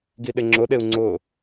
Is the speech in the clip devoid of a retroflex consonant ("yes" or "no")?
yes